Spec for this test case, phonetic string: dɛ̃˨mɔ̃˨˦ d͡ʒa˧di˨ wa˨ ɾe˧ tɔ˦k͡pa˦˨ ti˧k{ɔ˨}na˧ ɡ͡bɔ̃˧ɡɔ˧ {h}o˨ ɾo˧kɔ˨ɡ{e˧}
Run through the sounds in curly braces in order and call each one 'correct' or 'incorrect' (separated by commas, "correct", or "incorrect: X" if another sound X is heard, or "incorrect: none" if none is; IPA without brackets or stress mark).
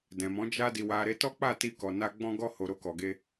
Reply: correct, correct, correct